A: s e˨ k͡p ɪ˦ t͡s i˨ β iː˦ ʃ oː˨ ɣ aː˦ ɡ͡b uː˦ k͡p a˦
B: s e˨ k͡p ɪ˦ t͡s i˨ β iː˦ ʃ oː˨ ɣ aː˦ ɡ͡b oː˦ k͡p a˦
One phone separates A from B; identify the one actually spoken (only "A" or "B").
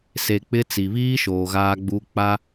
A